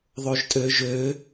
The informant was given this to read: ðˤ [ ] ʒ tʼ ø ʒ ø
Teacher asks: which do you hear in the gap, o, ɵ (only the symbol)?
o